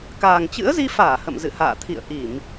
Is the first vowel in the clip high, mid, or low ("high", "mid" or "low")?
low